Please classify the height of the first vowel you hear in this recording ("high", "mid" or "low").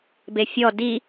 mid